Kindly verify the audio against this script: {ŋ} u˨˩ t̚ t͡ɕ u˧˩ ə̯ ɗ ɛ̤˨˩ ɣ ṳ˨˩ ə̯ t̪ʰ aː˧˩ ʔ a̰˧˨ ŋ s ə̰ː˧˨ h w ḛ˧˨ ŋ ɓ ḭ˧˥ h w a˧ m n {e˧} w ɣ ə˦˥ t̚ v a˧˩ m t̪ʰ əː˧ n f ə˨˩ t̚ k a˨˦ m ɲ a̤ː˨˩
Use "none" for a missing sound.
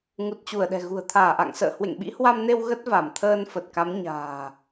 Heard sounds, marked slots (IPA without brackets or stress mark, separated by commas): ŋ, e˧